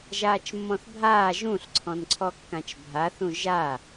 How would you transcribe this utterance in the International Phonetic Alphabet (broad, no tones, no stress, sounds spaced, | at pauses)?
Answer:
ʒ aː t͡ʃ mː ɔ̃ θ bʱ aː ʒ ũ ɬ ǀʰ ɔ̃ n ǀʰ ɔ kː ã t͡ʃ bʱ a θ ũ ʒ aː